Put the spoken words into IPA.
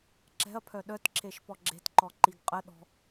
ǁ ɛ̤ ɐ̯ pʰ œ ɗ œ t ǁ e ʃ p ɔ ɡ͡ǁ e̤ t ǃ ɔ ǃ i ɡ qʼ ə ɗ ɔ̤

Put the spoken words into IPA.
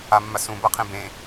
a mː a s ũ b a qʰ ẽ b ẽ

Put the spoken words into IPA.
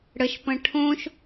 ɽ ə ʃ p ə̃ ʈʰ õ ʃ

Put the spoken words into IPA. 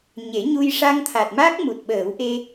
ɲ e˨˩˦ ɲ u˧ j ʂ a˧ ŋ t̪ʰ a˨˩ t̚ m aː˦˥ k̚ m u˨˩ t̚ ɓ əː˨˩˦ w ʔ e˧

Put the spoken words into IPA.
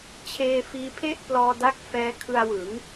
t͡ɕʰ eː˧ f iː˧ pʰ e˥˩ ʔ p l ɔː˧ d a˦˥ k̚ f ɛː˦˥ kʰ ɯ˧ a̯ w ɯ˩˦ ŋ

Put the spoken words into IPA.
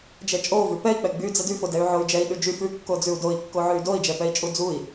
d͡ʒ ɛ t͡ʃʼ o v ʉ p ɛ i̯ k͡p ɛ ɡ͡b y d͡z ɛ d y f o d ɛ y̯ ʕ o y̯ d͡ʒ ɛ i̯ ɗ ʉ d͡ʒ y f ʉ kː o d͡z ʉ u̯ d o i̯ kː o ʕ ʉ y̯ d o i̯ d͡ʒ ɛ p ɛ i̯ t͡ʃʼ u d͡z u i̯

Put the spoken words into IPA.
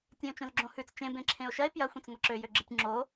tʲ ẽ o̯ t͡ʃ õ z ɡ͡ǁ õ h ʉ t͡s t͡ʃ ẽ b ẽ ǁʰ ẽ o̯ ʃ ɐ e̯ p j ɐ xʷ ẽ t͡s ŋʷ ɐ ǁ ø j ø ɡ͡ǁ ɨ tʲ ŋ͡ǁ o

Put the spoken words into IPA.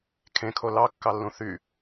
kʰ ẽ kʰ o l ɑ kː ɑ lː ũ θ y

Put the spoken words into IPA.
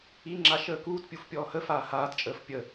i ŋ͡ǁ a ʃ əː k uː t pʲ u f pʲ ɔː h ə f aː h aː t t͡ʃʼ əː f pʲ ə

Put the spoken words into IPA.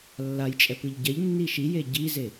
lː a j t͡ʃʼ ɛ p ɯ ʎ ɟ ɛ ʎ nː i ʃ i j e ɟ i z e

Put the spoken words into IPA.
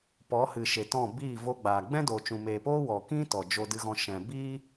p ɔ˨˦ h ɨ˨ ʃ e˨ t ɔ̃˦˨ b iː˦˨ v o˧ ɡ͡b aː˨ ɡ͡b ɛ̃˦ d o˨ t͡ʃ ũ˨ m eː˨ p oː˦ w ɔ˨ k ĩ˦ t ɔ˨ d͡ʒ o˧ d ɨ˧ ɣ ɔ̃˧ ʃ ɛ̃˨ b iː˦

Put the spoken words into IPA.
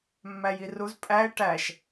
mː æ j i r u z pʼ æ e̯ ʈ æ ʃ

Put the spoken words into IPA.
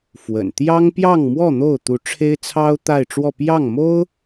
f w ə̰˨˩ n t̪ j ɑ˥ ŋ p j ɑ˥˧ ŋ m w ɔ˥˧ n̪ o˥˩ ʊ̯ t̪ u˧˥ ʈ͡ʂʰ e˥ ɪ̯ t͡sʰ ɑ˥ ʊ̯ t̪ a˥˧ ɪ̯ ʈ͡ʂ w ɔ˥˧ p j ɑ˥˩ ŋ m o˥ ʊ̯

